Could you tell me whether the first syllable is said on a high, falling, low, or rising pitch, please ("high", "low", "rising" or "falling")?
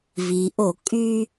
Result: low